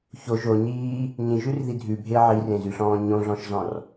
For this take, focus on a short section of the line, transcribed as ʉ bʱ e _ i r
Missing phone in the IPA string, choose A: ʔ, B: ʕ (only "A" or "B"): B